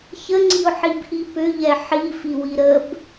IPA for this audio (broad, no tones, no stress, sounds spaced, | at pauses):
ç ə ŋ͡ǀ i ʊ̯ ħ i b ʔ i p ʏ ʎ ɛ ħ i f i w i ɾ ə b